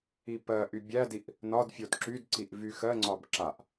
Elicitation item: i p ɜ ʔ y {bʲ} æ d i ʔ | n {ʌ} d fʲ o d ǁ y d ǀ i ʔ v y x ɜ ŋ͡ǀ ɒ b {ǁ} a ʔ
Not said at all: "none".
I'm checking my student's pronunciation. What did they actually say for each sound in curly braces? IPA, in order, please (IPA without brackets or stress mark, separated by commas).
bʲ, ɒ, ǁ